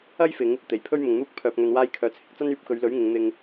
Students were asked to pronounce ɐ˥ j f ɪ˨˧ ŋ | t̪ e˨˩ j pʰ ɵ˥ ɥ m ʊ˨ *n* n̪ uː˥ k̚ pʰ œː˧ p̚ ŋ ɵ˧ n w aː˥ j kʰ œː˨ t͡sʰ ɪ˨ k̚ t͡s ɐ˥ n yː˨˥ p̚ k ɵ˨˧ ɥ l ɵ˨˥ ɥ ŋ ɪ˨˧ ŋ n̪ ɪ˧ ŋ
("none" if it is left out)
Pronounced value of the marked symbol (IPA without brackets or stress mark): ŋ